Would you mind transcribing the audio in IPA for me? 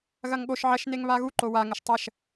ɣ ɐ ŋ ɠ o ʃ ʕ ɐ ʃ n e ŋ β a ɣ u ǃ o w a ŋ ə ʃ tˤ ɐ ʃ

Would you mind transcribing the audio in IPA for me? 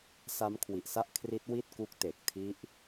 s a˦˥ m kʰ w i˨˩ ʔ s a˥˩ ʔ kʰ r i˦˥ t̚ w i˥˩ t̚ k u˦˥ k̚ t e˨˩ k̚ tʰ i˦˥ ʔ

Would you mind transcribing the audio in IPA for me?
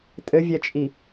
tʼ ɘ vʲ ɛ t͡ʃʼ i

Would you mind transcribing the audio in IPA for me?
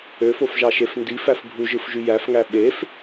ø f o f ʒ ɑ ʃ e f n d i f æ f bʱ u ʒ ɯ f ʒ y j æ f ŋ æ ɓ e f

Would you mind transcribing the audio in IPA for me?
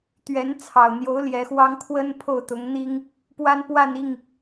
t̪ ɥ ɛ˧˥ n t͡sʰ ɑ˨˩ ʊ̯ n̪ j o˧˥ ʊ̯ l j ɛ˧˥ x w ɑ˥ ŋ kʰ w ə˥ n pʰ o˥˩ ʊ̯ t̪ ʊ˧˥ ŋ n̪ i˥ ŋ | p w a˥ n p w a˥˧ n i˥˩ ŋ

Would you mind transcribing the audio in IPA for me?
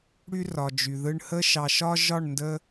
ɽ y˦ r ɒ˨ d͡ʒ y˨ ð ɯ˧ ɳ h ə˦ ʃ ɑ˨ ʃ ɒ˦ ʒ ɒ˦˨ ɳ n d ə˧

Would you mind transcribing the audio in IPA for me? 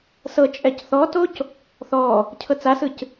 s ɤ t͡ʃʼ ɛ c θ ɔ t o c | θ ɔ | cʰ ɤ t͡s a s ɯ c

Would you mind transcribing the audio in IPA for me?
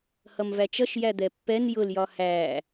h ʌ m v æ t͡ʃ ʌ ʃ j æ d̪ ɛ pː ɛ n j ʊ l j ɒ h æ

